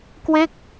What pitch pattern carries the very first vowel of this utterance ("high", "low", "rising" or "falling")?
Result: falling